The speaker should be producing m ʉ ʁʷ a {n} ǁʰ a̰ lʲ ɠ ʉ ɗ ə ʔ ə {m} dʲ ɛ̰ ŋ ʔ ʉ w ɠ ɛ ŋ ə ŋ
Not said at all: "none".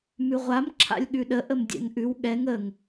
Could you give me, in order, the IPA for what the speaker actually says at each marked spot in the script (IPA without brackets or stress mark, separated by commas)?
m, m